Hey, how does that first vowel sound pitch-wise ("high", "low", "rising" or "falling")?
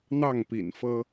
falling